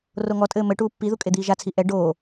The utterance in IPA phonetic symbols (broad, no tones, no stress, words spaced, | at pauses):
roŋɔtʼɘː mɘ ʈuːpːiðu kʼed̪iːʒat͡sʰi ʔɛ ɖoː